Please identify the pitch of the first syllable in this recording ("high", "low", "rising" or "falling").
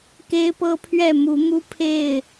high